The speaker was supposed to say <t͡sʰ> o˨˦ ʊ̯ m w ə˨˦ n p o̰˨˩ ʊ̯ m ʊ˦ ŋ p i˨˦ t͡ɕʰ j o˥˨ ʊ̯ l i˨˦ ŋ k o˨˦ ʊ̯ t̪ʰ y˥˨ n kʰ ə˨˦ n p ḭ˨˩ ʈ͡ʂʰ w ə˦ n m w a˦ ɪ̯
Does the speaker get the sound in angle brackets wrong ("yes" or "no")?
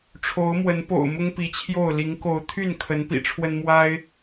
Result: yes